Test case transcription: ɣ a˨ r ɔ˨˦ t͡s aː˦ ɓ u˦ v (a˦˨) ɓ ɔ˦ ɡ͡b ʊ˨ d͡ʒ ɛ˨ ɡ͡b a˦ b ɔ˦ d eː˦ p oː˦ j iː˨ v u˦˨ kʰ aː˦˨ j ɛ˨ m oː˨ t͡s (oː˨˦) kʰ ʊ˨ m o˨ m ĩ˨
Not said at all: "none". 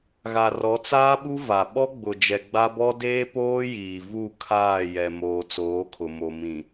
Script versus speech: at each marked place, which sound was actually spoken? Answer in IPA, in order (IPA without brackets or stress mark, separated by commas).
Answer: a˨, oː˨˦